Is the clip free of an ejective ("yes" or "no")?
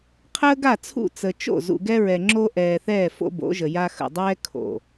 yes